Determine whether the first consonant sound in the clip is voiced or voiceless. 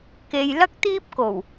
voiceless